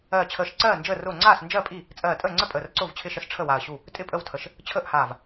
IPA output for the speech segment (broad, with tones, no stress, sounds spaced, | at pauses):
ɜː˧˩ t͡ɕʰ əː˧˩ ʃ ǀ ɜː˥˩ n d͡ʒ əː˥˩ r ʊː˥˩ ŋ͡ǀ aː˥˩ s n d͡ʒ ɜ˥˩ pʼ i˥˩ | t͡sʼ ɜː˧˩ tʼ əː˥˩ ŋ͡ǀ ə˥˩ pʼ əː˧˩ r ǀ ʊː˥˩ v t͡ɕʰ ɪ˥˩ ʃ ə˥˩ s ʈ͡ʂʰ ə˥˩ w a˧˩ ɐ̯ ɕ u˥˩ | tʼ ɪ˥˩ pʼ ə˥˩ w tʰ ə˧˩ ʃ | t͡ɕʰ əː˥˩ ʔ h aː˧˩ v